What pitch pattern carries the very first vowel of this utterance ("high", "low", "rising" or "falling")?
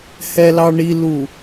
high